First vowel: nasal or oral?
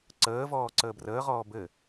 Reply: oral